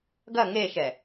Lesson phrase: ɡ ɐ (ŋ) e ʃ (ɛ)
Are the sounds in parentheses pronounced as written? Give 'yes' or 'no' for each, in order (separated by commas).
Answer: yes, yes